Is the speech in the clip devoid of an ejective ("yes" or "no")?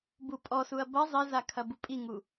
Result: no